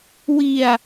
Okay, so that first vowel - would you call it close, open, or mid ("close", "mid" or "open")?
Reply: close